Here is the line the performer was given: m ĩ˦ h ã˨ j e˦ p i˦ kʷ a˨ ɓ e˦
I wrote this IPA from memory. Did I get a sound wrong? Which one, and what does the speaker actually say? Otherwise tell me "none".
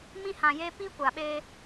none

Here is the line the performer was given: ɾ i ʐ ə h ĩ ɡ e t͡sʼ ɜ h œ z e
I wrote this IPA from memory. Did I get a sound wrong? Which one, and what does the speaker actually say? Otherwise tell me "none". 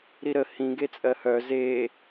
ʐ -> ɾ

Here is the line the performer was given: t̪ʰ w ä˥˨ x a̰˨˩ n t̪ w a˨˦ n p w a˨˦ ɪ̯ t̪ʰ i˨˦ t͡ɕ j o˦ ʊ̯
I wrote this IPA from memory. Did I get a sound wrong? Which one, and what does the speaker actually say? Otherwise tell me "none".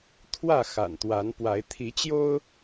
none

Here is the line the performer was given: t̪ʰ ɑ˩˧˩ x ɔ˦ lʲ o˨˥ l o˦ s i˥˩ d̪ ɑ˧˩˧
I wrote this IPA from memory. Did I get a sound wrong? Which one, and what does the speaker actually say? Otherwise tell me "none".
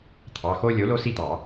ɔ˦ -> o˦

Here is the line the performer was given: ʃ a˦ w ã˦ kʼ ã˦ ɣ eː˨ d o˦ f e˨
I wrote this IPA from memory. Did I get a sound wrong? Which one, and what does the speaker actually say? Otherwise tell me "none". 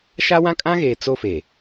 d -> t͡s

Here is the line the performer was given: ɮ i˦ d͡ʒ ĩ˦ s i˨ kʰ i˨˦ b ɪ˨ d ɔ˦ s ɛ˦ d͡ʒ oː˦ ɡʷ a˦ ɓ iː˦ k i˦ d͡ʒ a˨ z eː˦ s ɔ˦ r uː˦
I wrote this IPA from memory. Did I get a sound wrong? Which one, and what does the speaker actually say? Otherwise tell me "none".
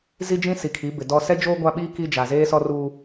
ɮ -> z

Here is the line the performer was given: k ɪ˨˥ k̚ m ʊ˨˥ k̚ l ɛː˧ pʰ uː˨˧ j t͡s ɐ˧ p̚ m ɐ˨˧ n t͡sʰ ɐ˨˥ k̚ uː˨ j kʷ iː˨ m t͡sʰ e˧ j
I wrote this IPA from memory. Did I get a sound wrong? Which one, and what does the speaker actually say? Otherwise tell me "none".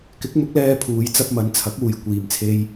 none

